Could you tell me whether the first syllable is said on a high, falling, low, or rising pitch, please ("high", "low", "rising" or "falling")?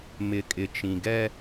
low